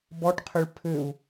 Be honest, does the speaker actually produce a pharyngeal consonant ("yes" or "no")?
no